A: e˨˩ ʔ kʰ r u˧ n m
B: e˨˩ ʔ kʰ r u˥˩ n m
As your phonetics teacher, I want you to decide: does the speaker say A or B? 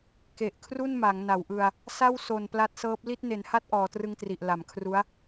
B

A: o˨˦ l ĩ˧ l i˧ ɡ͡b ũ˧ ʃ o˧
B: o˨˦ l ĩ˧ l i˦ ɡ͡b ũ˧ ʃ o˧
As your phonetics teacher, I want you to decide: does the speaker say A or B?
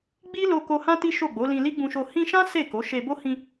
B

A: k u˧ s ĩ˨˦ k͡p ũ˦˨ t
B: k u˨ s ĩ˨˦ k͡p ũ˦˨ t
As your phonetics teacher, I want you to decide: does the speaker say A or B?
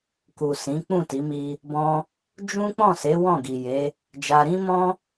B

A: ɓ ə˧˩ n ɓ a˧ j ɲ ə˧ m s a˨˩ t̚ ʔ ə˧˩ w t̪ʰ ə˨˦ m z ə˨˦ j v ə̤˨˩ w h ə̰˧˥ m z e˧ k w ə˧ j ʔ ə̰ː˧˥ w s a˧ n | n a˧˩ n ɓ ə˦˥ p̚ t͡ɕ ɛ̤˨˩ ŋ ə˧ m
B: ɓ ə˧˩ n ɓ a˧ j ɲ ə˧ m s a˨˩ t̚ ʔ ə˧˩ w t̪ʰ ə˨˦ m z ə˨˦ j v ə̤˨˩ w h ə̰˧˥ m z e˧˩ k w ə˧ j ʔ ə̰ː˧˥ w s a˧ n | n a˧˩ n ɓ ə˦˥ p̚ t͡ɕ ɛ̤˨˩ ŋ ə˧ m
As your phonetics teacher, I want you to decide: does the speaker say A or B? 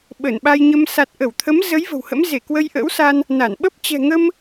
B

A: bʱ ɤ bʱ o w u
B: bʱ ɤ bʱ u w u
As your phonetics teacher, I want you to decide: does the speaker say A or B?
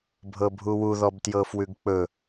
B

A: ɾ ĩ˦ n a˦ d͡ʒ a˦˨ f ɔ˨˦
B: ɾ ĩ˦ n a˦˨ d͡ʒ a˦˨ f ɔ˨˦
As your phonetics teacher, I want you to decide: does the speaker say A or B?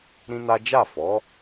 A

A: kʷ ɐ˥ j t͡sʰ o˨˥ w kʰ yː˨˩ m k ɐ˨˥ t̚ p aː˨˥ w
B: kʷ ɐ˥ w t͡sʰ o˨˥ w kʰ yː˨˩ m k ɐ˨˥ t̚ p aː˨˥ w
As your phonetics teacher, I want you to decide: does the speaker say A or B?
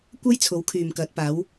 A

